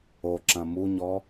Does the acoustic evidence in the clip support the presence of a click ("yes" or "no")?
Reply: yes